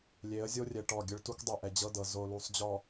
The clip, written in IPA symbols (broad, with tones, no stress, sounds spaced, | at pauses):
lʲ e˨˦ ə̯ zʲ o˦ rʲ ɛ˨ ʈ ɔ˦˨ ɡʲ ɯ˦ ɭ t u˦ k dˤ ɤ˦˨ ʔ ɛ˨ d͡ʑ ɤ˦ d ɤ˨ z o˨ l u˨ sˤ d͡ʑ ɔ˨